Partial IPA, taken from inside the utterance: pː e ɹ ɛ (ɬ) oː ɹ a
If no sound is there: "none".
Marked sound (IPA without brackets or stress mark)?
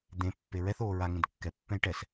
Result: θ